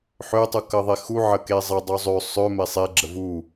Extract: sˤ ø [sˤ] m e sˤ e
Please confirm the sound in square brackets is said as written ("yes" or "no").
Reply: no